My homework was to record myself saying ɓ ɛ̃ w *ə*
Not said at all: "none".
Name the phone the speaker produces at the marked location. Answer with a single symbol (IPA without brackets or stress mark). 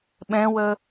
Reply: ə